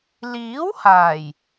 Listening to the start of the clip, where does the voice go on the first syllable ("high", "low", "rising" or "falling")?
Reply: rising